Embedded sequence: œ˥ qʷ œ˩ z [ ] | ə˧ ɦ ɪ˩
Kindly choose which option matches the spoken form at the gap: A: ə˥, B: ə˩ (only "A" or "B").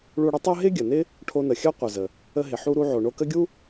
B